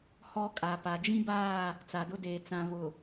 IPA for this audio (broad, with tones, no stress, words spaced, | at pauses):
hɔ˦kʼa˨pa˨ d͡ʒĩ˦baː˦˨ | t͡sa˨dʊ˦deː˨ t͡sã˨ βʊ˨